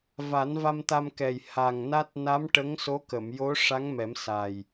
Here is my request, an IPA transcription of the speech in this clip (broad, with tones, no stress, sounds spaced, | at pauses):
v a˨˩˦ n v a˧ m t̪ a˧ m k ɛ˨˩ j h a˨˩ ŋ n a˦˥ t̚ n a˧˥ m ʈ ə˧˥ ŋ s o˧˥ k ə˨˩˨ m j o˧˥ ʂ a˧˥ ŋ m ɛ˨˩˦ m s a˨˩ j